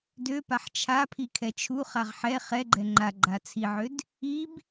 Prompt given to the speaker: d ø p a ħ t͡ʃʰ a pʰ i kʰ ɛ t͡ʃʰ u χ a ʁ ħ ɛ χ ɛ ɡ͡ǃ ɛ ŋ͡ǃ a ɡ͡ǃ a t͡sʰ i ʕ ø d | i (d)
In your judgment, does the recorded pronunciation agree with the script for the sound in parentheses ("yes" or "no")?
no